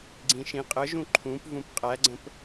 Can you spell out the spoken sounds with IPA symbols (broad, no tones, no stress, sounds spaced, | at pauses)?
ɡ͡ǀ ĩ ʃ ĩ qʼ ə ʒ ũ ǃʰ ũ p v ũ p qʼ æ ɡ͡ǀ ə̃ p